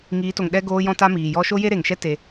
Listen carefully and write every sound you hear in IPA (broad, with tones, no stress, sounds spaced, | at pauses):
ŋ iː˨˦ t o˨ ŋ ɗ ɛ˧ ɡ oː˧ j ɔ̃˧ t a˧ m iː˨ j ɔ˦ ʃ o˦ j e˦ ɾ e˨ ŋ ʃ ɛ˦ t e˧